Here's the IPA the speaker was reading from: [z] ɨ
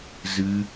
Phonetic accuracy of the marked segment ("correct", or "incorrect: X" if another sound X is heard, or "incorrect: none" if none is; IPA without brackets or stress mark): correct